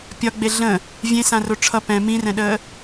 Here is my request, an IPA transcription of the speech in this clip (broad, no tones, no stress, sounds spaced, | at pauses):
pʲ ɒ ɡ͡b e ɮ ə̃ | vʲ ẽ s ã r o ʈ͡ʂʰ ʌ p ɛ̃ m ĩ r ɛ̃ ɗ əː